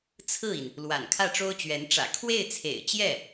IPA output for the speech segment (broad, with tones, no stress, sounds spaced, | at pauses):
t͡sʰ ɹ̩˥˩ i˩ n | l w a̰˨˩ n kʰ ä˥˩ ʈ͡ʂ o˥ ʊ̯ t͡ɕ ɥ ɛ˧˥ n ʈ͡ʂ ä̰˨˩ kʰ w e˥˩ ɪ̯ t͡sʰ ḛ˨˩ ɪ̯ t͡ɕ j ɛ˥˩